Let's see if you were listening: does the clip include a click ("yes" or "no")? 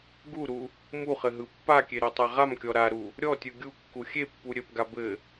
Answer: no